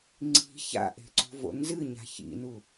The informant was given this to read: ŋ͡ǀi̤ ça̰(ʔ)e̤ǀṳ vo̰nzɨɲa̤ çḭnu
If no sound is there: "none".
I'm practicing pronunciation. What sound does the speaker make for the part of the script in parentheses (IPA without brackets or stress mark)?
ʔ